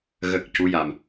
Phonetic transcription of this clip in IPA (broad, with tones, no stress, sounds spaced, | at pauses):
ɣ ə˨˩ k̚ c u˧˥ j a˨˩ m